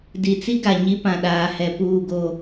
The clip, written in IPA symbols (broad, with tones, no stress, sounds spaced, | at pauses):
d i˨ t͡s i˦ ɡ a˨ ɲ i˦ p ã˨ ɗ aː˨ h ɛ˨ p uː˦˨ ɡ o˦˨